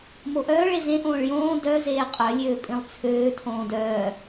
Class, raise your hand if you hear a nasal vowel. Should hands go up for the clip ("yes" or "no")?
yes